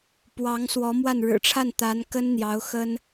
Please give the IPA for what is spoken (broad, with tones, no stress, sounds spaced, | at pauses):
p w ɑ˧˥ ŋ s w ɔ˧˥ m w a˥˩ n ɻ ɻ̩˨˩ ʈ͡ʂʰ a˥˩ n t̪ a˧˥ n k ə˥ n n̪ j ɑ˧˥ ʊ̯ x ə˥ n